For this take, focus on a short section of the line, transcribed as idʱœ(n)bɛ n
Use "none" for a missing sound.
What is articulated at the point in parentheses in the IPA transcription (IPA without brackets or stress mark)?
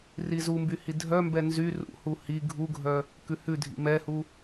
m